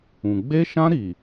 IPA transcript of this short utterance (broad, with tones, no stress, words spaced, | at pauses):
ũ˨ ɡ͡be˧ʃã˧ ɾi˨